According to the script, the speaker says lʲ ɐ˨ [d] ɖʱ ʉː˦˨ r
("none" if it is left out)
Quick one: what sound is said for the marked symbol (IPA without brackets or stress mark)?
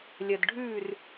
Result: d